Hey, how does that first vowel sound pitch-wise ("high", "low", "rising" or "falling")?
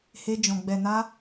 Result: high